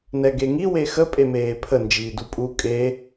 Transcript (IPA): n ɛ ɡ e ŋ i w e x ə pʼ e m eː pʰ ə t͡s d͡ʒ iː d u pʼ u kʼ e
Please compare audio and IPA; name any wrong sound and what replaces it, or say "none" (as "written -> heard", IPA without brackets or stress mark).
t͡s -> n